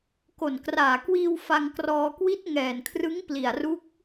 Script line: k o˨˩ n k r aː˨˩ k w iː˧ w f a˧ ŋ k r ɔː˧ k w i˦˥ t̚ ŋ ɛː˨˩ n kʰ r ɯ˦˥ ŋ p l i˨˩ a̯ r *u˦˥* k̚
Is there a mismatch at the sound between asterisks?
no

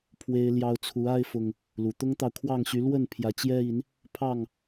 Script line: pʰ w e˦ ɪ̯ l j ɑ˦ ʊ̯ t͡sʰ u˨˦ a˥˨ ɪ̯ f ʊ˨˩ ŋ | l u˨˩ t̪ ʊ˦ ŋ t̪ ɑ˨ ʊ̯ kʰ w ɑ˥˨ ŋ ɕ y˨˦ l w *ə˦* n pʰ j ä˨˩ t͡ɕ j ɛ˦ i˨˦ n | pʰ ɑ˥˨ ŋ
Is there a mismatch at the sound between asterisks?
yes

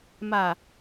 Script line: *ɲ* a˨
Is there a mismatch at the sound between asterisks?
yes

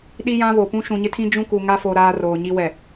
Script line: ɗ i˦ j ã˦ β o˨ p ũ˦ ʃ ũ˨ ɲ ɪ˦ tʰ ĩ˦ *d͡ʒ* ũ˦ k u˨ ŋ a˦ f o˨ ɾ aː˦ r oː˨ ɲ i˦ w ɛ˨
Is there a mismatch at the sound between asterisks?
no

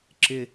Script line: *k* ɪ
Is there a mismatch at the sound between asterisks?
yes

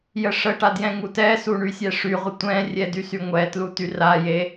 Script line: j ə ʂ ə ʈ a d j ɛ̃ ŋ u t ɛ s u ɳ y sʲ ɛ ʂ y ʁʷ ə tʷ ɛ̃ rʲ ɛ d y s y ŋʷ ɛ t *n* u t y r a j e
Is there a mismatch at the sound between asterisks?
yes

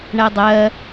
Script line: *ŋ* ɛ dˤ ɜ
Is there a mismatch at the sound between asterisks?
yes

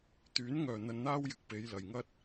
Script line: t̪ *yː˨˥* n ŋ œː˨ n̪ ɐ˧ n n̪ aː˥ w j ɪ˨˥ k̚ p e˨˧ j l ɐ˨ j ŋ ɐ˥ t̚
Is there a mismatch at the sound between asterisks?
no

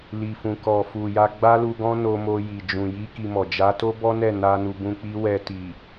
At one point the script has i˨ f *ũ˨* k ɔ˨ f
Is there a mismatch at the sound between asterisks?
no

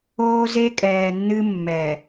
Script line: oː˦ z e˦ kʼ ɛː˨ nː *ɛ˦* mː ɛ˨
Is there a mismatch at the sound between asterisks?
yes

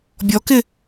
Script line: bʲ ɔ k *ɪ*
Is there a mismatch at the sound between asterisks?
no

